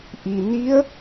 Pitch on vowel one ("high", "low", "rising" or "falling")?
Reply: low